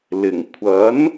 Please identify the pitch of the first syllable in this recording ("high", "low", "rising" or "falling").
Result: low